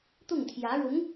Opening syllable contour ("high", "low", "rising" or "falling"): falling